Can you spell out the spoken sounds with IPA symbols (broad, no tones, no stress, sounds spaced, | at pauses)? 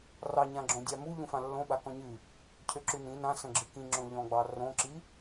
r ɑ ɲ ã ɡ͡ǁ õ dʲ a m u ʎ ũ f ã lː õ ɓ a k ɔ̃ ɲ ɨ | cʰ ø ǁ ʉ n ĩ n ã s ə̃ ɡ͡ǁ ɨ k ĩ ŋ͡ǁ õ ʎ ɔ̃ ɡ͡b ɑ r õ ǁ i